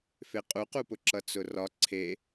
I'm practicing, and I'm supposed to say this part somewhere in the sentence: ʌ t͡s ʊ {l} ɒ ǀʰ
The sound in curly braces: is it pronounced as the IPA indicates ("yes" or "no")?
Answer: no